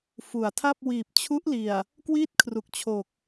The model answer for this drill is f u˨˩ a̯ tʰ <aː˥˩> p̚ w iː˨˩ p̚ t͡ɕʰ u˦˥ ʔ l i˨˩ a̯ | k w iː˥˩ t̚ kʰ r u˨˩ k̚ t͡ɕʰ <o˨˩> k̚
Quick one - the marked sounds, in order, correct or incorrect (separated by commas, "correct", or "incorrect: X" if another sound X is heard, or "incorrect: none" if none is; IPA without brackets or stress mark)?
incorrect: a˥˩, correct